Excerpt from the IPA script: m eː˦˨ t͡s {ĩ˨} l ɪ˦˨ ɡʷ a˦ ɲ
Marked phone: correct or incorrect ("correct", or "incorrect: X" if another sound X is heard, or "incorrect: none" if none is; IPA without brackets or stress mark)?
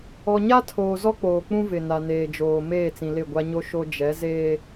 correct